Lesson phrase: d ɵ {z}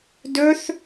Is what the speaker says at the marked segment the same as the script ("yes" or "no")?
no